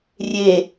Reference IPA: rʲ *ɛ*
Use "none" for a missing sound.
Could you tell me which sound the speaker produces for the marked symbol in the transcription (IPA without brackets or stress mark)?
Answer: e